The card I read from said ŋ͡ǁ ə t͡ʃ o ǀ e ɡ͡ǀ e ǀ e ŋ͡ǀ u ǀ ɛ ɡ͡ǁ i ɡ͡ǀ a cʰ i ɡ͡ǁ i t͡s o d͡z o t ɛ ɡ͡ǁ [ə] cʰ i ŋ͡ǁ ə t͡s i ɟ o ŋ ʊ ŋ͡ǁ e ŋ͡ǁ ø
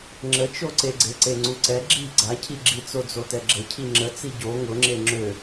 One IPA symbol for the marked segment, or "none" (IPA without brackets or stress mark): ə